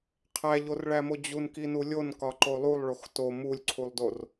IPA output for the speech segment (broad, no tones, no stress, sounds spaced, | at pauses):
qʰ æ ʎ o r ɭ æ m o d͡ʑ u n k i n u lʲ o n k ɒ ǃ o lˠ u lˠ ɭ o x t o m u lʲ ǀʰ u lˠ d o r